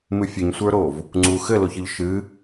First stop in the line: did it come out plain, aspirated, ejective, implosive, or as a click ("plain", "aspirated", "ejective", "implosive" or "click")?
click